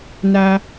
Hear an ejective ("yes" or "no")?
no